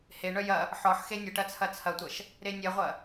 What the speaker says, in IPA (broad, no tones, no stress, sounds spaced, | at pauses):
h e ɳ œ j ɐ | ħ ɔ ħ x e nʲ ə ʈ ɐ t͡sʰ ɐ t͡sʰ ɐ tʷ ɐ ʃ | ɾ e nʲ ɛ ʁʷ ɐ